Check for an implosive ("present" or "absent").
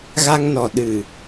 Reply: present